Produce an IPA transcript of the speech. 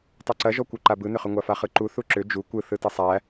tˤ u ǀ ɐ ʒ ɔ kʷ ɯ ǃ a b ɯ n ʏ χ ʏ ŋʷ a f a χ ɯ ǃ u θ u ǁ ʏ d͡ʒ u kʷ ɯ θ ɯ t ɐ sˤ æ

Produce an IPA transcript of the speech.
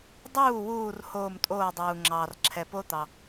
dˤ uː˥˩ w uː˧˩ r h oː˧˩ m tʼ oː˧˩ dˤ uː˩ ŋ͡ǁ ɑː˩ r ǁʰ ɛ˩ p o˦˥ t̪ ɑ˩

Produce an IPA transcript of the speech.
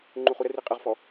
ŋ͡ǃ u χ u ɾ ə r i qʼ ə ʁ f ɔ

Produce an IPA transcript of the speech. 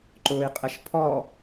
ǃ ʊː i̯ qʼ ə ʃ pʰ ɔ

